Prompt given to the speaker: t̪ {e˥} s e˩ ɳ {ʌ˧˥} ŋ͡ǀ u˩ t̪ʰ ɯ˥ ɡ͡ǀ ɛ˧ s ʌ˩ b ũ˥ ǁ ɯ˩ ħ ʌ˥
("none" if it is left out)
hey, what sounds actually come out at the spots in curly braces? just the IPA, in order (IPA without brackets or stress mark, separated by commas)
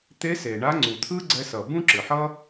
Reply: e˧˥, a˧˥